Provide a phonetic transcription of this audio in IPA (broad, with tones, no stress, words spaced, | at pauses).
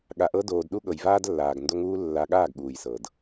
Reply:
ɠa˨ʔɤ˧ doː˨d ɗu˦ɠɤ˨jvaː˦dlːaː˨ɡ ndo˧ŋuː˧ lːa˧ɠaː˦˨ɡ ɠuː˨jsɤ˨d